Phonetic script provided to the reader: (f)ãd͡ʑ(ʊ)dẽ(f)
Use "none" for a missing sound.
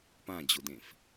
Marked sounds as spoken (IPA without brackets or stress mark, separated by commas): p, ʊ, f